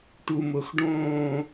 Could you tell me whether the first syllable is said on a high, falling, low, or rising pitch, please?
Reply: low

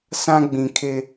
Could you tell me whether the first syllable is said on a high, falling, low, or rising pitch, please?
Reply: high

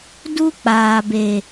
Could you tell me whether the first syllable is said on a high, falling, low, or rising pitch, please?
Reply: high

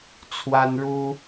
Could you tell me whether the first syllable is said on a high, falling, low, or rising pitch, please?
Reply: high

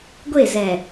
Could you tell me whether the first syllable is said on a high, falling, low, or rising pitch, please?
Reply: falling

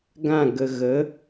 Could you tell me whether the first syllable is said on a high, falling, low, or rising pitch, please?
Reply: falling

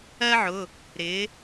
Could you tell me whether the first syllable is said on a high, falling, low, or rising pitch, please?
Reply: high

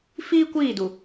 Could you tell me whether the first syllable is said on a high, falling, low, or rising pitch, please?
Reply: high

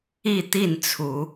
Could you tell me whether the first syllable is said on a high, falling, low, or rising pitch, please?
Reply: falling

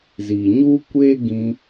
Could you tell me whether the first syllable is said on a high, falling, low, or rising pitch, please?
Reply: low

